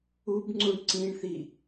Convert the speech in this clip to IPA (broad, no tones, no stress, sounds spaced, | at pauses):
u b ŋ͡ǀ u ɳ ǀ ĩ ɳ θ i